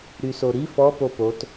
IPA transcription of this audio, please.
ɾ y s o ɾ i f ɔ p o p o t

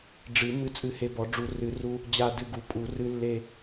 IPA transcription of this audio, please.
ɖ͡ʐ ɨ˨˩˦ m ɨ˧ t͡sʼ ɨ˧ h e˧ b ɔ˨˩˦ ɖ͡ʐ u˨˩˦ r ɨ˨˩˦ r u˧ | d͡ʑ a˧˩ d ɨ˧˩ ɡ u˨˩˦ pʼ u˨˩˦ r ɨ˧ lː e˧˩

